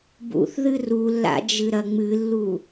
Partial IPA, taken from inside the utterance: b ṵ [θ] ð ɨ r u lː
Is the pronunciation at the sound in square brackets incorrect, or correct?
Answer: correct